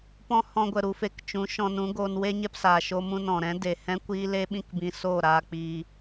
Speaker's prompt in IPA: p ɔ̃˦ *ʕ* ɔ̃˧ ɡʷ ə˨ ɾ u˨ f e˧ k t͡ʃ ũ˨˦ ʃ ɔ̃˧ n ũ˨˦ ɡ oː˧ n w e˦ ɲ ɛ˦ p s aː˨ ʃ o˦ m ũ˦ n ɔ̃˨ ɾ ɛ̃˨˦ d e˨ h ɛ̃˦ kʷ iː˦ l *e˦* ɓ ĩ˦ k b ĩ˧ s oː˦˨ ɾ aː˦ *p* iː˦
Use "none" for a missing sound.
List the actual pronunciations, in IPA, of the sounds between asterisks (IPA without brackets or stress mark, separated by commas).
h, e˦, k͡p